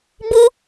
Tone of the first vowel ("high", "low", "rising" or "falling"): high